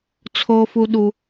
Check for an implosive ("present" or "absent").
present